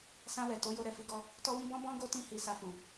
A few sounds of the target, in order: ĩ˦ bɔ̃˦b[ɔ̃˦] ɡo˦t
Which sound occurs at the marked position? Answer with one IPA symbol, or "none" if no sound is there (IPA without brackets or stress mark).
ɔ̃˦